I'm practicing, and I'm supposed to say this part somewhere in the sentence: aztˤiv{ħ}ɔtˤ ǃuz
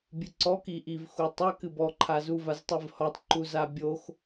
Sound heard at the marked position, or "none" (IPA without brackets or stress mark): h